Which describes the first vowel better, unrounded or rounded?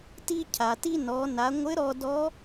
unrounded